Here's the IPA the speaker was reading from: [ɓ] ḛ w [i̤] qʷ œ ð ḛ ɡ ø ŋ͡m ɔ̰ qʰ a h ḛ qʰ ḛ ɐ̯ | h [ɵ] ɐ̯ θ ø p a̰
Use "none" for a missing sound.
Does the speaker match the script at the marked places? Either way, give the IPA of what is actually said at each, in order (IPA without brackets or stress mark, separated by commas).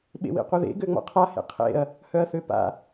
ɓ, ḭ, œ